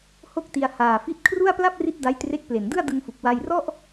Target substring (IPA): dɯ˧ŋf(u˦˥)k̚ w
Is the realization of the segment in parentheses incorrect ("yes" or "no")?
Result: yes